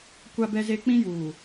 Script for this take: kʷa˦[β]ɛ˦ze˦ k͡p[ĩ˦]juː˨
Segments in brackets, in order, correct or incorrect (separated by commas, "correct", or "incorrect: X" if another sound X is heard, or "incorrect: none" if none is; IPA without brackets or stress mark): incorrect: b, correct